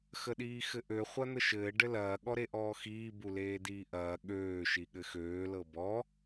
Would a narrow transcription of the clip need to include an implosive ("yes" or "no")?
yes